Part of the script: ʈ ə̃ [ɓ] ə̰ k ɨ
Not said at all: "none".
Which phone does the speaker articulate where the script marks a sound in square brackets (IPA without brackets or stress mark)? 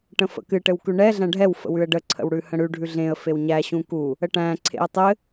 f